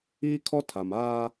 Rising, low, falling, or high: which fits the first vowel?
high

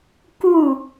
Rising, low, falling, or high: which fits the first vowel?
falling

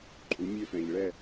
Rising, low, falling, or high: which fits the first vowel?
rising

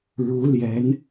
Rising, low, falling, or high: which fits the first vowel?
rising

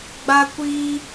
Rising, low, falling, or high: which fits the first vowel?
high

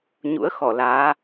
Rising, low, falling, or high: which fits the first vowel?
rising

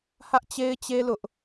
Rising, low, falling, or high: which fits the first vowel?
high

